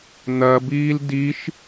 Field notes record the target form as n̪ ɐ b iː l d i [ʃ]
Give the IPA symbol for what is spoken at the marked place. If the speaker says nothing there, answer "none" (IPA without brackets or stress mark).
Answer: ʃ